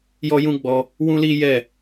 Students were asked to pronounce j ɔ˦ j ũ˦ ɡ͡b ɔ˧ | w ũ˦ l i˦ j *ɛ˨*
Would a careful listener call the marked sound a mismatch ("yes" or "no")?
yes